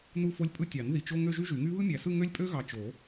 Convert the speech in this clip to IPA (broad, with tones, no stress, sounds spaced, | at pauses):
n u˥˧ f o˥ lʲ pʼ ɯ˥˧ tʲ ɑ˨˩˦ n ð i˨˩˦ t͡ʃ o˥˧ ŋ ø˥˧ ʒ y˥ ʒ y˨˩˦ ŋ y˥ β ɯ˥ mʲ æ˨ s ɯ˥˧ ŋ ø˥ lʲ pʼ ø˥ ɣ ɑ˨ t͡ʃ o˨˩˦